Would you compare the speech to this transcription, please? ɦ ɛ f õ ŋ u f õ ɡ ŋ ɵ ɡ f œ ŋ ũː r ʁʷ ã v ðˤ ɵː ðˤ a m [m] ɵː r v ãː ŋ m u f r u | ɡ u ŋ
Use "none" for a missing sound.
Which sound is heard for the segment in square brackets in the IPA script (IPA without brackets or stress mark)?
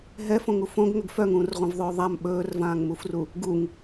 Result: ɓ